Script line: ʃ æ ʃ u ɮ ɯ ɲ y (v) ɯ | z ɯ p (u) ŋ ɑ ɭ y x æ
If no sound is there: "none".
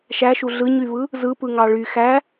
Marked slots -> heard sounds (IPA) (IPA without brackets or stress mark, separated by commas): v, ɯ